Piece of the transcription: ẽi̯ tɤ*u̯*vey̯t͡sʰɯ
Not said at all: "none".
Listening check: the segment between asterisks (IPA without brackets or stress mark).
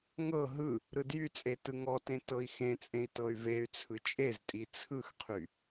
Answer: y̯